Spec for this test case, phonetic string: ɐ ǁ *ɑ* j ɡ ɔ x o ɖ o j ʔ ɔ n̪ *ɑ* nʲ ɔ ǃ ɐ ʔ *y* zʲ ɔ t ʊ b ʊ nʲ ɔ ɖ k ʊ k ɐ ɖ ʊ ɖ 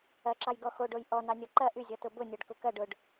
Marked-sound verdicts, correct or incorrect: correct, correct, correct

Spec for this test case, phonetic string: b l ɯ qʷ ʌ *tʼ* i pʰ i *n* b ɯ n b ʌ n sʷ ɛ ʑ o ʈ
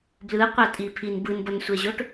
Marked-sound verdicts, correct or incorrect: correct, correct

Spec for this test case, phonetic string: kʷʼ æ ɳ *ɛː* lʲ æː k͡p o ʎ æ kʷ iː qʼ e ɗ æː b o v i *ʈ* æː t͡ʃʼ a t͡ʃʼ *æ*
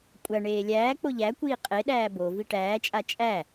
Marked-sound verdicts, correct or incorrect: incorrect: eː, correct, correct

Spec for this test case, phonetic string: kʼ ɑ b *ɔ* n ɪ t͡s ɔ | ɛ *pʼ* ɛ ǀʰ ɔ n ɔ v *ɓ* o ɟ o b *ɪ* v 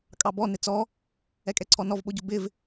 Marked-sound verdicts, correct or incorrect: correct, incorrect: kʼ, correct, correct

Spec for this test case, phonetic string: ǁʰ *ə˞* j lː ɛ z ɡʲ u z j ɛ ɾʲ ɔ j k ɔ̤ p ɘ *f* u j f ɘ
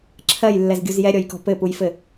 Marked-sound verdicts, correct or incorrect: incorrect: ɜ, incorrect: p

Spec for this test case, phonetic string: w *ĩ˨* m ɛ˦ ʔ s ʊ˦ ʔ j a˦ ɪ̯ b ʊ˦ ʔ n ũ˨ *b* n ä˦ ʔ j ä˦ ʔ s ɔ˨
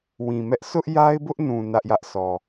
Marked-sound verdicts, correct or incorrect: correct, incorrect: none

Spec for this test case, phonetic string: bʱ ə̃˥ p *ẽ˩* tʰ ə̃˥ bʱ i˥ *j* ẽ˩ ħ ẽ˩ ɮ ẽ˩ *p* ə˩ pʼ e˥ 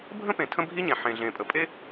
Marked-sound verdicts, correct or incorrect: correct, incorrect: ɲ, incorrect: pʼ

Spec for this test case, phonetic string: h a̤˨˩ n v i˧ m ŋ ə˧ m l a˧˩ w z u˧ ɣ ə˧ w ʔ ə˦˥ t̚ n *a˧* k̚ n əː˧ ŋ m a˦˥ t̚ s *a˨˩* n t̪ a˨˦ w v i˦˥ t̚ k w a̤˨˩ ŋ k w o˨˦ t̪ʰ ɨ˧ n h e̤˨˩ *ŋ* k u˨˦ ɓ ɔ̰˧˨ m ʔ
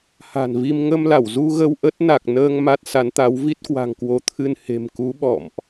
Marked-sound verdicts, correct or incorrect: incorrect: a˨˩, incorrect: a˨˦, incorrect: m

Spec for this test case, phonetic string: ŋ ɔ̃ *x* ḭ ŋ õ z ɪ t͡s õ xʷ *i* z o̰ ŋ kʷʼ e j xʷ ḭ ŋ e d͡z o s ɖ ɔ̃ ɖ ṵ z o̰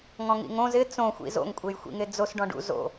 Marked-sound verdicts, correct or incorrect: incorrect: ŋ, incorrect: ḭ

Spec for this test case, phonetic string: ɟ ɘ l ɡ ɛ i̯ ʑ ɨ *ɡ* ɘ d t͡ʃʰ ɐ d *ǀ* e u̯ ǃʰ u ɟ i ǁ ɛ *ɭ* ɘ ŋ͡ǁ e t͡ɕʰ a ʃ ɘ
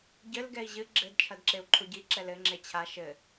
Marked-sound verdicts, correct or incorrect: incorrect: ɡ͡ǁ, incorrect: ǁ, incorrect: l

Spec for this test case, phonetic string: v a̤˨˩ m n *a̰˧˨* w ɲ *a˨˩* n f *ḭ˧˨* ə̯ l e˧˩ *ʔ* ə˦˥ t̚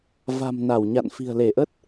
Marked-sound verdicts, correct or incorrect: incorrect: a˧˩, incorrect: a̰˧˨, incorrect: i̤˨˩, correct

